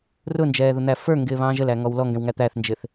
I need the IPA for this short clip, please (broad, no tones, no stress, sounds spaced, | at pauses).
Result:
r ʊ n d͡ʒ ɛː ð ʊ n̪ æ f ə˞ ŋ ɡ ɪː β ɑ̃ː ʒ ə l æ ŋ ɔ w l ɔ ŋ ɡ ɛ̃ w ŋ æ t̪ æ θ n d͡ʒ ɪ θ